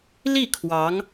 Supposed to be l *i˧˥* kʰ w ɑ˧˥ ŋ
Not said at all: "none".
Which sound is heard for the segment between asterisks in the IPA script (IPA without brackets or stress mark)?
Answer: i˥˩